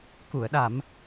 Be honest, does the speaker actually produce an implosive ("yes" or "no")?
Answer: yes